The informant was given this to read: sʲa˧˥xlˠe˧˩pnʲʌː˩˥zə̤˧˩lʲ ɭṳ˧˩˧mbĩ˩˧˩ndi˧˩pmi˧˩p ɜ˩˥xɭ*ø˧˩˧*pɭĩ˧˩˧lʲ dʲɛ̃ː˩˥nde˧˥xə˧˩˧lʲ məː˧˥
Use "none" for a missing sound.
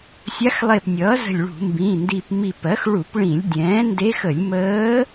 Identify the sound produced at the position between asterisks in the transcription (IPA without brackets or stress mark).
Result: u˧˩˧